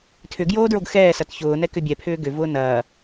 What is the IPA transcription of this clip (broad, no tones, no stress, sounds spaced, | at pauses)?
tʰ ʏ ɡ j oː d ɹ o ɡ x ɛː s ɐ t ç ʊː n ɛ k ʏ bʲ ɛ pʰ ʏː ɡ ʏ v ʊː n ɐː